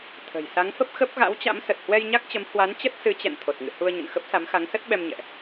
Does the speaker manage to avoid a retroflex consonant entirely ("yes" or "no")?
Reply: yes